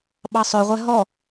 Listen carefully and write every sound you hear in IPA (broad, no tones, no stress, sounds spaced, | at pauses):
ɓ ɑ sˤ œ ʁʷ ɛ ɦ ɔ